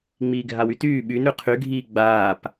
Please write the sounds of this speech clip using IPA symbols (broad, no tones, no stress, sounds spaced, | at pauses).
ŋ͡m iː ɡʱ a w y t yː ɓ y n ɾ ʉ qʰ y ɡʱ iː ɡ͡b aː p